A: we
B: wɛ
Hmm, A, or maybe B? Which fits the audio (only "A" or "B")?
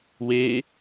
A